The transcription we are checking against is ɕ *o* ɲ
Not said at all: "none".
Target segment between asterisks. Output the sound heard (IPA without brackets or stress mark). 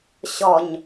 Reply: ɔ